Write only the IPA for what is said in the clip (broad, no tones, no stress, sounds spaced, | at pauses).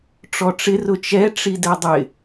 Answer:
ʈ͡ʂ ɔ ʈ͡ʂ ɪ r ʊ t͡ʃ ɛ ʈ͡ʂ i d ɛ dˤ ɪ